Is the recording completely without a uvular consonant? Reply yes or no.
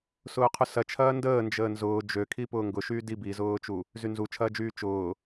no